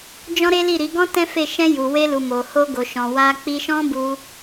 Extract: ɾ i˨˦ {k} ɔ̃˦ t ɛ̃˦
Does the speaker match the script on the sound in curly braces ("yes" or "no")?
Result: no